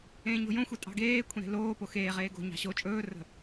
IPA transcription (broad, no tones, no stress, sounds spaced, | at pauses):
ẽː ɲ o̤ j õ xʷ e tʼ ɑ̤ ɡ eː kʷʰ ẽ ɾ e̤ l oː p o x eː ʁ eː ɡ o̤ ɲ ɑ̤ ɕ o t͡ʃʼ ɵː r ə̤